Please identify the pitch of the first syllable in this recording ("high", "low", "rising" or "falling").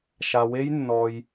low